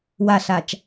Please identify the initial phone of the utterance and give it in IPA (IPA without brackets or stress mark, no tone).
w